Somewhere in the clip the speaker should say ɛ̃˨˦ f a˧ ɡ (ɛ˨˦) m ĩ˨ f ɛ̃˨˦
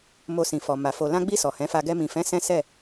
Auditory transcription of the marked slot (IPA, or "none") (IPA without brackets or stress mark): ɛ˧